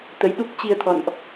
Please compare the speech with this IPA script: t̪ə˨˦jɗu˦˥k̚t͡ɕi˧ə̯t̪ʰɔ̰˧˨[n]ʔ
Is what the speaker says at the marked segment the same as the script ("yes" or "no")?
yes